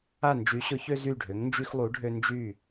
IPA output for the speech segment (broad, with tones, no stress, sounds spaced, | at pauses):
a˦˨ n d͡ʒ y˨˦ ɕ ʊ˨˦ ç ø˦ z y˦˨ ɖʱ ø˨˦ ŋ n d͡ʒ y˦ x lˠ u˨˦ ɖʱ ø˦ n d͡ʒ y˦˨